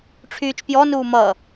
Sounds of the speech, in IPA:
ʈ͡ʂʰ yː t͡ʃ p j ɔ n uː m ʌ

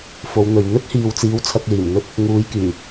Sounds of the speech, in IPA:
f o˨˧ w n̪ ɵ˨ ɥ n̪ ɵ˥ t̚ h iː˨ w t͡s iː˨˥ w t͡sʰ ɐ˧ k̚ l iː˨˩ m n̪ ɵ˥ t̚ | ŋ uː˨˧ j k yː˨˩

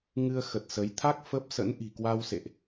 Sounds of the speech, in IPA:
ŋ ɨ˧ ə̯ x ə˨˩ t̚ s ə˨˦ j t̪ʰ a˦˥ k̚ f ə˦˥ p̚ s ə̰˧˥ n ʔ i̤˨˩ k w a˧ w s ḛ˧˨ ʔ

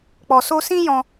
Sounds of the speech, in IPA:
k͡p ɔ˨ s o˧ s ĩ˦ j ɔ̃˧

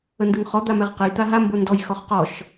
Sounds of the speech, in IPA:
ə n d ɯ ŋ χ ɔ d̪ a m ɛ ʁ q ə j t̪ a ɦ a m b o n d ɔ j x ɔ χ q ɔ ʃ

